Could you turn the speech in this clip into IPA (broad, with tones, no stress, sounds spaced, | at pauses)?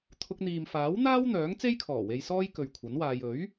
t̪ʰ ʊ˧ k̚ n̪ iː˨ m f aː˨˥ w n̪ aː˥ w n̪ œː˨˥ ŋ t͡s e˥ j kʰ ɔː˨˩ w e˧ j s ɔː˥ j k ɵ˨ ɥ kʷʰ ɐ˨˥ n w aː˧ j ɵ˨˥ ɥ